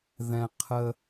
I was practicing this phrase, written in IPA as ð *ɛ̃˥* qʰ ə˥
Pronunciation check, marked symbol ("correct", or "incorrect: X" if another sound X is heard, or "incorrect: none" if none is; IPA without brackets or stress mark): correct